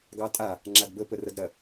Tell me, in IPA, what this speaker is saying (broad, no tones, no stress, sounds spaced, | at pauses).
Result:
ɡ ɑ tʼ a | ŋ͡ǁ a d b ə p ə r ɐ d ɾ ɐ